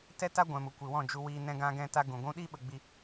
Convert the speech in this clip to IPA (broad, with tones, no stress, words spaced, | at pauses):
tɛ˦ta˦ ɡʷɛ̃˨mu˨kʷi˨wɔ̃˦˨ d͡ʒu˧wiː˧ nɛ̃˦ɡã˦ɡɛ̃˦ta˦ ɡũ˨ɡʷũ˦ ɗi˦ɓə˧ɡ͡bi˧